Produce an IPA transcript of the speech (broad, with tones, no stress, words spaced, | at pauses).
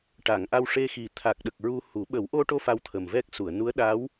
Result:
ʈa˨˩˨ŋ ʔa˧wʂe˧ xi˨˩ t̪ʰa˨˩k̚ɗə˨˩k̚ ɹu˧hu˨˩˦ ɓə˨˩˦wʔo˧ʈo˧ fa˧wt̪ʰə˨˩mvɛ˦˥k̚ su˨˩˨ə̯ nu˧˥ə̯ ɗa˧˥w